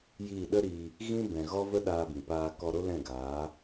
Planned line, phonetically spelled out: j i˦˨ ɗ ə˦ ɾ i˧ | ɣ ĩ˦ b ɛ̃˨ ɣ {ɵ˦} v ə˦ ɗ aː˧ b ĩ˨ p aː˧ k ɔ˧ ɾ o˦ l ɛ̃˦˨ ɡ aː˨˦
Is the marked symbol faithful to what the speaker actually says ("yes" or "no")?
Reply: no